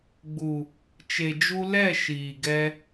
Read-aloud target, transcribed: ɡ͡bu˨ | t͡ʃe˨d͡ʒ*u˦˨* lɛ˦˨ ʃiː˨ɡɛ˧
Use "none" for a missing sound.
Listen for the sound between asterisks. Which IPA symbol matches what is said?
u˧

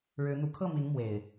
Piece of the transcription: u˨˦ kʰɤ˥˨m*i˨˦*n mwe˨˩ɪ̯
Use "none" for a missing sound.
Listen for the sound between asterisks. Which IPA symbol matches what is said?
i˨˦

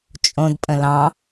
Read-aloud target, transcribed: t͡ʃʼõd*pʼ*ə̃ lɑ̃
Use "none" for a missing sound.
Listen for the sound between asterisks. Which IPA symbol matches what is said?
pʼ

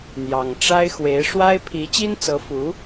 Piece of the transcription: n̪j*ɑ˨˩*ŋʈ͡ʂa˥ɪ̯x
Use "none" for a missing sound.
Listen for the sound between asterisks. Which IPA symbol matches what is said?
ɑ˨˩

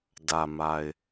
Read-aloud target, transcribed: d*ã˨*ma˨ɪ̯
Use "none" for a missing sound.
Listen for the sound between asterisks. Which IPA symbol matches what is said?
ä˨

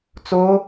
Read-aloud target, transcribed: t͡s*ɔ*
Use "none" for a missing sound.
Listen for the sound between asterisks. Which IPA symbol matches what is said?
o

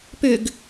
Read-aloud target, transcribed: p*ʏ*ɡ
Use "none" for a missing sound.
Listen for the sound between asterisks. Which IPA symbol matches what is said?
ʏ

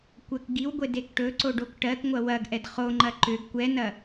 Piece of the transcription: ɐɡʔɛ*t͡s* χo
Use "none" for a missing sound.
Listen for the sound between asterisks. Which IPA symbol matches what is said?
d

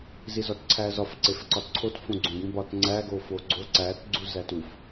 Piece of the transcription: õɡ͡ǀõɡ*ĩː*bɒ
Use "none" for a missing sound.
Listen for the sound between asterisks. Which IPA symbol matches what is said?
ĩ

